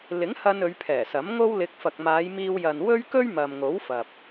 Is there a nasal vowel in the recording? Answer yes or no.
no